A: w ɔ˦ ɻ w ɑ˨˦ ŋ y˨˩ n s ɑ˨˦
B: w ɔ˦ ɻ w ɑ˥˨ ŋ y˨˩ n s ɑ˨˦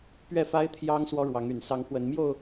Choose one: A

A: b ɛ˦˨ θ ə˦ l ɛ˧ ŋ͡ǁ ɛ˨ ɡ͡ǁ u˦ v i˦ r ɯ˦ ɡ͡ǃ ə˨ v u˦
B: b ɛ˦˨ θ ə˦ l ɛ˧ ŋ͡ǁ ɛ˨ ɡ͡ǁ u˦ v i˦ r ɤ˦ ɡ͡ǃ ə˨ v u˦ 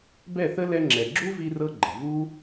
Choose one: B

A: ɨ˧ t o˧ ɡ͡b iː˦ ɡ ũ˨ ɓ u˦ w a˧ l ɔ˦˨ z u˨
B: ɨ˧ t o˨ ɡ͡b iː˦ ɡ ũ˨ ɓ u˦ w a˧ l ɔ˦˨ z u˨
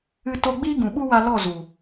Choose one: A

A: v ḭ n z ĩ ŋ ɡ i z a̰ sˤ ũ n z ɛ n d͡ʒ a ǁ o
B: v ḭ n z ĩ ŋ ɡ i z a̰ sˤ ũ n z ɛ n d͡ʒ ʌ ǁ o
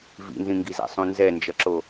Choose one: B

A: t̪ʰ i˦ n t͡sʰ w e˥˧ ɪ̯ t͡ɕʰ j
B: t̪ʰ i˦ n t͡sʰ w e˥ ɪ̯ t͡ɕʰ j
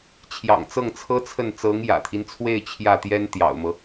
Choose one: A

